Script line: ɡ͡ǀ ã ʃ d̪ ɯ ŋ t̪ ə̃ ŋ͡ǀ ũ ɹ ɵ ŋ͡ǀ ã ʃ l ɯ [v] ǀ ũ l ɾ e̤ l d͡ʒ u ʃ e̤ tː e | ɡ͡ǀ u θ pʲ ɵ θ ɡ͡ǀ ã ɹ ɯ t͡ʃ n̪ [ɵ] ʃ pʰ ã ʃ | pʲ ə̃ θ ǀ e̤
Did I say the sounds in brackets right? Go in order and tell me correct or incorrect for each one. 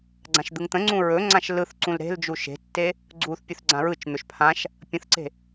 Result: incorrect: θ, correct

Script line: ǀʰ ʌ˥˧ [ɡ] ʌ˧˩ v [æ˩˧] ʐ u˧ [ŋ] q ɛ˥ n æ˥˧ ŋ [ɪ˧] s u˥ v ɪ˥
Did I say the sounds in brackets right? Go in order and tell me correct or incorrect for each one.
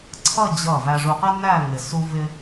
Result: incorrect: d͡ʑ, incorrect: æ˧, incorrect: none, correct

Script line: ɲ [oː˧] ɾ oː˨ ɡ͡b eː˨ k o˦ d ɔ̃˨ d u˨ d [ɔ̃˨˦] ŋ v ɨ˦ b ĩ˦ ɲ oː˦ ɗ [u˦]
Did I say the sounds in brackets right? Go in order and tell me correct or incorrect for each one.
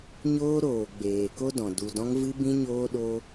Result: incorrect: oː˦, incorrect: ɔ̃˧, incorrect: o˦

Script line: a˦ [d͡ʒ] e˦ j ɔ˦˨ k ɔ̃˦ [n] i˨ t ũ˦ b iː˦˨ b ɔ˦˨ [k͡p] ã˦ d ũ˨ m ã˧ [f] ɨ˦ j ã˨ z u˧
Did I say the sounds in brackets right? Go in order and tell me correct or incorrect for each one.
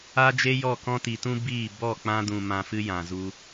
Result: correct, incorrect: t, correct, correct

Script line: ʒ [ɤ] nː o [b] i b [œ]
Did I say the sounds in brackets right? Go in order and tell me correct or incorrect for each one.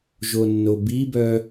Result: incorrect: o, correct, correct

